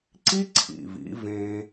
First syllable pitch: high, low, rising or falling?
high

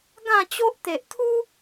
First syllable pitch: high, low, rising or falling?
falling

